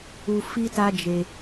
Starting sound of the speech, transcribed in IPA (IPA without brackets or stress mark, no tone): u